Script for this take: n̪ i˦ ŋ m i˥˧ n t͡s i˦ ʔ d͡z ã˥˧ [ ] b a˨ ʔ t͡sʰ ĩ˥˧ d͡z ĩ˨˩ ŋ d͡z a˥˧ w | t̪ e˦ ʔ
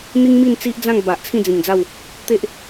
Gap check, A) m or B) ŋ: B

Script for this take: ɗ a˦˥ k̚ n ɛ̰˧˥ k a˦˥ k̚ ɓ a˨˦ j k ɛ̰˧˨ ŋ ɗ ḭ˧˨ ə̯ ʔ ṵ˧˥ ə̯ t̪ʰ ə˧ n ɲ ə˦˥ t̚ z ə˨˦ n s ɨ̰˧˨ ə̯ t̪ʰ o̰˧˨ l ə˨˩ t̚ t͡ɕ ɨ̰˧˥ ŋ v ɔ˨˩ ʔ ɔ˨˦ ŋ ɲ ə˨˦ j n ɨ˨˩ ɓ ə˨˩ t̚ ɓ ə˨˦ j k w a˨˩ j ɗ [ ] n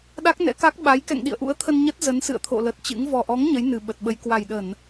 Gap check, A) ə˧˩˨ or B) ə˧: A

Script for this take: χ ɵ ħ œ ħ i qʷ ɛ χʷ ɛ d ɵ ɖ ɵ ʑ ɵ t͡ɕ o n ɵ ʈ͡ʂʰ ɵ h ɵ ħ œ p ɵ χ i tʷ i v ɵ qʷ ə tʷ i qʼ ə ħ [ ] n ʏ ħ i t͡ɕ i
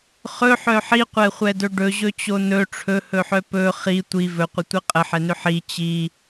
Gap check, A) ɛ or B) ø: A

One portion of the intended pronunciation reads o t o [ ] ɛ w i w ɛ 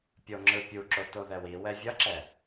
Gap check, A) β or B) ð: B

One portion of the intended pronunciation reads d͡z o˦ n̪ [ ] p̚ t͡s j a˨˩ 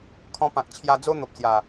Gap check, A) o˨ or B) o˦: A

